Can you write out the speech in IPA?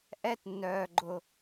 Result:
ʔ ɛ˥ t nː œː˧ ɡ͡ǃ ʊ˧

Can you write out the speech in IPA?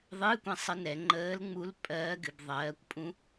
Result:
ðˤ ɨː˧˥˧ kʷ ɛ̃˦˨ sˤ ə˧˥ n ɛ˩˧ ŋ͡ǃ əː˧˥ l ŋ͡m u˧˥ l pʼ ɜː˧˥ ɡ ɨ˩˧ b ðˤ ɜː˩˧ kʷ pʼ ũ˧˥

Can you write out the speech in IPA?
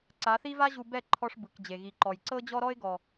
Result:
ǀ a˨˦ θ i˦ v a˦ ʑ u˧ b ɛ˦˨ ǃʰ ɔ˧ ʂ b ɯ˨ k d͡ʑ e˨ ɣ i˨ ǃ ɔ˨ j ǀ ɤ˦ d͡ʑ ɔ˦ ɾ ɔ˦ ɪ̯ ɡ ɔ˨

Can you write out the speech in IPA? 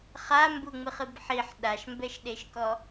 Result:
χ a m b u ŋ͡m ɨ χ ɨ b ħ i ħ ɗ a ʃ m b ɛ ʃ ɗ e ʃ k ɔ

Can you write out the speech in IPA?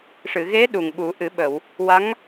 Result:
ʂ ɨ˨˩˨ ɣ e˧˥ ɗ u˨˩ ŋ ɓ u˨˩˦ ʔ ɨ˨˩˦ ɓ ə˨˩˨ w | w a˧˥ ŋ

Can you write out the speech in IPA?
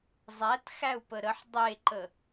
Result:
zˤ æ t x æ u̯ p ə ɾ ə ħ dˤ e ǃ ə

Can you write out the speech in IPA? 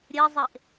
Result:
ɾʲ e zˤ e ʔ

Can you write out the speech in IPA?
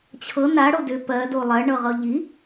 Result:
t͡ɕʰ ɤ n a ɽ o d ʏ p ɜ d o lˠ ɜ ɳ ɤ ʁ ɤ ʎ i

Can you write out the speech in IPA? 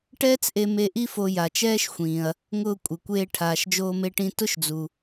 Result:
ʈ ɛː˥ t͡s ʔ e˧ m e˧ ʔ i˥ f o˧ j a˩ t͡ʃ ɛː˥ ʃ xʷ ĩː˩ ɐ̯ | ŋ ʊː˧ kʷʼ ɪ˩ kʷ eː˧ ʈʰ aː˩ ʃ d͡ʒ oː˧ m e˧ ʈ ĩ˧ t ʊ˥ ʃ d͡z u˩

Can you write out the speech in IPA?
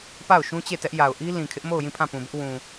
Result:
p a˦˨ ʊ̯ ʃ ũ˦ t͡ɕ e˦˨ t ɛ˦ ʔ j a˨ ʊ̯ ʔ i˦ l ĩ˨ kʰ ɪ˦ ʔ m o˦˨ ʊ̯ j ĩ˦˨ pʰ ã˦˨ p ũ˨ b ɪ˦ ʔ w ũ˨

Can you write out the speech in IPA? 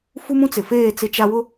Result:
f u˦ m ũ˦ t͡s ɪ˨ f eː˦˨ t͡s ɪ˦ t͡ʃ a˦ w ʊ˦

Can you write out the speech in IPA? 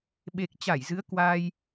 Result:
ɓ e˨˩ k̚ t͡ɕ a˧˩ j z ɨ˨˦ ə̯ k w aː˧ j

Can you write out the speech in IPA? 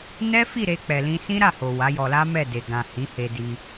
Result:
n ɛ˦ f i˦˨ ɾ e˧ k͡p ɛ˨ l ĩ˧ s ĩ˦ ɾ a˦˨ h o˨ w a˨˦ j ɔ˧ l a˦ m ɛ˦˨ d e˨ ɡ ã˨ h ĩ˨˦ h e˧ d i˧

